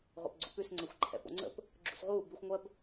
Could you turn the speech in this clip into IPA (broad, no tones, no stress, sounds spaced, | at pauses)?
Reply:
ʁ o̰ p ɡ͡ǀ ṵ p ʉ s ŋ͡ǀ ɛ xʷ ǃʰ ɛ̰ p o̰ ŋ͡ǀ ə̰ p | ɡ͡ǁ ṵ s ʁ uː b ʉ xʷ ŋʷ ɜ b